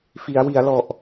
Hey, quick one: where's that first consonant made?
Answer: lips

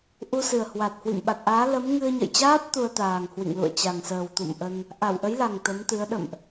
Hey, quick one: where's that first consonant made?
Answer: throat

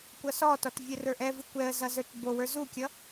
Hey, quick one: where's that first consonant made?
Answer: velum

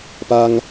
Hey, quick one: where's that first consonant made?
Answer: lips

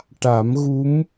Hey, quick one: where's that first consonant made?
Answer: retroflex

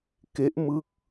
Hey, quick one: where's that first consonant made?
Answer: velum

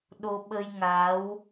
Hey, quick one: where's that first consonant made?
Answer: tongue tip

